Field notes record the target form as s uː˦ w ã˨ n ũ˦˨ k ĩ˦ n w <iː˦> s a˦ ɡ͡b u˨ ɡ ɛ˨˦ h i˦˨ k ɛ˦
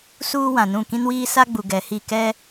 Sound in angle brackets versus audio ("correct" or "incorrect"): correct